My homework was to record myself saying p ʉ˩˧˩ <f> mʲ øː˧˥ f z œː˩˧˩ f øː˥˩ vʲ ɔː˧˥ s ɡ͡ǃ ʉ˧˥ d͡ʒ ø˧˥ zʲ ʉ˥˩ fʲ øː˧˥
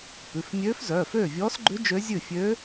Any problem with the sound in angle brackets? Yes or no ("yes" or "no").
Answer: no